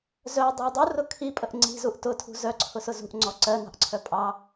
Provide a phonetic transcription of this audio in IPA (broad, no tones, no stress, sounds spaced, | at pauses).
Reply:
z œ dˤ ɑ dˤ u r ʊ kʰ i pʼ ə ʔ ŋ͡ǀ i̤ z u ʔ t ʊ tʰ ṳ z œ ǀʰ ʊ s ʊ z ṳ ʔ ŋ͡ǀ ɔ ǀ ɜ n ɑ̤ ʔ ǀʰ œ pʼ ɑ